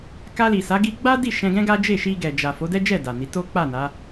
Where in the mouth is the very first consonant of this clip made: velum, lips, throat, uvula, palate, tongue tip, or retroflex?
velum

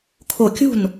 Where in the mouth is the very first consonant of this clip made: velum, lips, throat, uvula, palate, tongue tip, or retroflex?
velum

